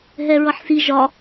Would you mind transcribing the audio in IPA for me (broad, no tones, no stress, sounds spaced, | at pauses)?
ɦ ɛ ɹ ʌ ħ s i ʒ ɒ